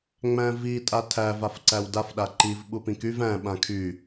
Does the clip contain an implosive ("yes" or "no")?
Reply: yes